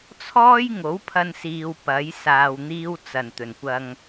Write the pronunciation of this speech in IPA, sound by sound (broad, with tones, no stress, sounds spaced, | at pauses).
t͡sʰ ɔː˥ j ŋ o˨˥ w pʰ ɐ˧ n s iː˨ w p ɐ˨˥ j s aː˧ w n̪ iː˥ w t͡s ɐ˨˩ n t̪ ɵ˨˩ n kʷ ɐ˧ ŋ